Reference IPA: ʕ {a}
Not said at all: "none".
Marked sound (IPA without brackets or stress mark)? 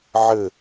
ə